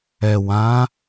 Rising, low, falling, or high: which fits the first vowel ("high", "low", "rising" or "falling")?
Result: low